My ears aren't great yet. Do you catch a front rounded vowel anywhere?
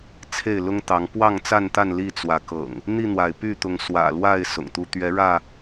yes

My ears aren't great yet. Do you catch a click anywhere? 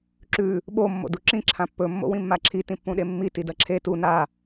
yes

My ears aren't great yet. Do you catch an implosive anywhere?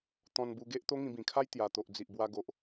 no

